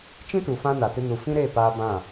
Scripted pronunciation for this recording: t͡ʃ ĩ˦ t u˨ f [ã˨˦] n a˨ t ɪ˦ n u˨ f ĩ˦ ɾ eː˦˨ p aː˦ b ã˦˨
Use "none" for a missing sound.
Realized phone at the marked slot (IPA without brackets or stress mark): ã˦